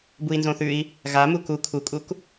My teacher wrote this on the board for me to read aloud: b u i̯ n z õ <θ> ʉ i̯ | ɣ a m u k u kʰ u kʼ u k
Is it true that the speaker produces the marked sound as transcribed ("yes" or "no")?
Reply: yes